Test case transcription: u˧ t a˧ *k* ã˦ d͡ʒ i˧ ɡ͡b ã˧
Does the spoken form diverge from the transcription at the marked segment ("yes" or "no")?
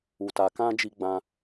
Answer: no